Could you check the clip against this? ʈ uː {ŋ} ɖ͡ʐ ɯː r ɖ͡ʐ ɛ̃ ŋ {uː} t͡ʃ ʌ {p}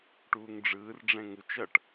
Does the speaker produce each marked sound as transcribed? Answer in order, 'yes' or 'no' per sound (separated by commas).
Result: yes, no, no